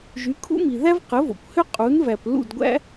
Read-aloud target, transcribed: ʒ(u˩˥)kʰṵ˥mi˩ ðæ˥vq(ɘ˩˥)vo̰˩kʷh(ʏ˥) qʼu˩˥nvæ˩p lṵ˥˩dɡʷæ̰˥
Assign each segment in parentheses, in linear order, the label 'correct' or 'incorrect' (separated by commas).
incorrect, correct, correct